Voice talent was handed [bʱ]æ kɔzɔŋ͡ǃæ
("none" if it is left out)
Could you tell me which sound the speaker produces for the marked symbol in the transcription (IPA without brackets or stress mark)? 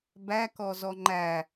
b